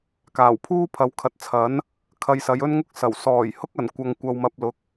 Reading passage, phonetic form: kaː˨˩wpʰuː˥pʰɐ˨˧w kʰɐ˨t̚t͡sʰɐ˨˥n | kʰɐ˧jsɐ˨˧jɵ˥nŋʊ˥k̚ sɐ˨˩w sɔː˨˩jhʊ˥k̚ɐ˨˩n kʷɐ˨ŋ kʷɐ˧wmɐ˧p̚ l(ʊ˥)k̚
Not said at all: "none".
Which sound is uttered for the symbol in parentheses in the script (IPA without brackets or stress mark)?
ʊ˨˥